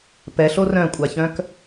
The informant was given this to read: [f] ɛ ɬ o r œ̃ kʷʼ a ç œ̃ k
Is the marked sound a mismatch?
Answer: yes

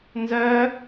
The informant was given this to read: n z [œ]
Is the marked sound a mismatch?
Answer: no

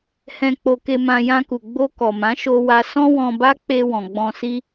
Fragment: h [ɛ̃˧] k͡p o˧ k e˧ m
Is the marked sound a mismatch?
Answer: no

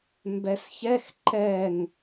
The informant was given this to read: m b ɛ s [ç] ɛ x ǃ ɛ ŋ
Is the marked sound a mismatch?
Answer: no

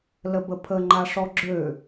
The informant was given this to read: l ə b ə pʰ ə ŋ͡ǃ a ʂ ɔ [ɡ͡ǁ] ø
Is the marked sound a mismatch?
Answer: no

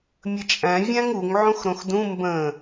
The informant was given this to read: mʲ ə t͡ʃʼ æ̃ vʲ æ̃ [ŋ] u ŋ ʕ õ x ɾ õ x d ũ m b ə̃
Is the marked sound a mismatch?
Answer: no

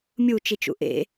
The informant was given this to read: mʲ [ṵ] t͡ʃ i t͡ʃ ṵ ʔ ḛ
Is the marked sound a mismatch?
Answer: yes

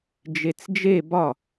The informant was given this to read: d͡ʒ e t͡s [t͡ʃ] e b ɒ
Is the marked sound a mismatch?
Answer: yes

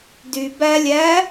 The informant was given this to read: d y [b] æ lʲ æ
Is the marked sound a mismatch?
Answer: no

